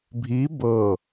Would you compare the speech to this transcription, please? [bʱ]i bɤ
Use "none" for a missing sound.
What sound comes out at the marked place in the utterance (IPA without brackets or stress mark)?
bʱ